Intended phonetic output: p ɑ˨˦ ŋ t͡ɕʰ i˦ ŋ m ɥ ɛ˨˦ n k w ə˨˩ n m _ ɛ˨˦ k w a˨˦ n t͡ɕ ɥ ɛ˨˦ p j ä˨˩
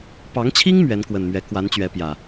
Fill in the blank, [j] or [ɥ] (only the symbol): ɥ